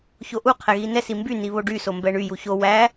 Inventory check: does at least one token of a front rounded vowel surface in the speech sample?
yes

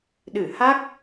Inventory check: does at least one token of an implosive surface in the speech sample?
yes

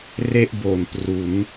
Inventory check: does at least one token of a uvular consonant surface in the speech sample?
no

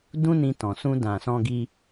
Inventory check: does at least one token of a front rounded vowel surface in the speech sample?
no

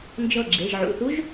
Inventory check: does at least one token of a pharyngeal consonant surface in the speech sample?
yes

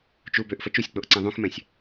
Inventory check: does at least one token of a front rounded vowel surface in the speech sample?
yes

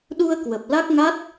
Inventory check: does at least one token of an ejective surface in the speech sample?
no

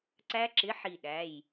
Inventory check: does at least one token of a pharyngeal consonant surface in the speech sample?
yes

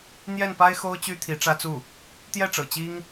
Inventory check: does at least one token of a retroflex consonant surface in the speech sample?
yes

